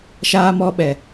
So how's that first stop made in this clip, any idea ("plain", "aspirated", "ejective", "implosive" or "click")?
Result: implosive